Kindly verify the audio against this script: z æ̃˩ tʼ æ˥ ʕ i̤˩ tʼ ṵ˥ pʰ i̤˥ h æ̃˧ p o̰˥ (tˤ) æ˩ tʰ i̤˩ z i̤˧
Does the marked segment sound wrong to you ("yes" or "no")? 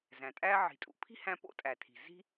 yes